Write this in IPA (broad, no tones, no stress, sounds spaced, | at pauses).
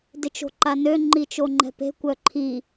d ɪ t͡ʃ o̤ ǃ a n ø ŋ͡ǃ i t͡ʃ o ŋ͡ǃ ɛ̤ p e̤ kʷ œ ǃʰ i